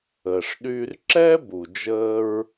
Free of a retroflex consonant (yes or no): no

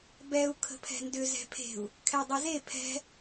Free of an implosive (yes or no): yes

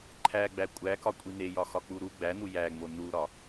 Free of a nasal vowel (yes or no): yes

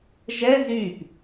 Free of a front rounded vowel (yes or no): no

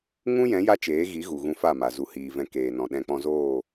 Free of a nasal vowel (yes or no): no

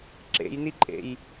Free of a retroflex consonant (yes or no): yes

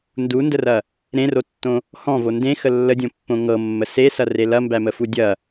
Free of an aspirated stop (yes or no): yes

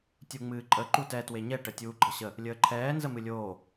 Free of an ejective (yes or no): no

